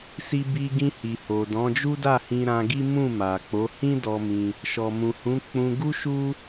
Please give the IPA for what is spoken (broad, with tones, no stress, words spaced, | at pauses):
si˧bi˧ɡĩ˧ hi˨ho˨ dɔ̃˨˦d͡ʒu˦da˦˨ hĩ˧ɾã˧ɡi˦ mũ˦˨ma˨k͡po˨˦ hĩ˦dɔ˧ mĩ˧ | ʃɔ˨mũ˨hũ˨˦ k͡pũ˧ɡu˦ʃu˦